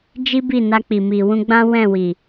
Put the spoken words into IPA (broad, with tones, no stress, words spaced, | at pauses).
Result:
d͡ʒi˦bi˦˨ na˧k͡pi˨ mi˨wũ˧ɡ͡bã˦ wɛ̃˦˨wi˨